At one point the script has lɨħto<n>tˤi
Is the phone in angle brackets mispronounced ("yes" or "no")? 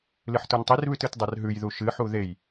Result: no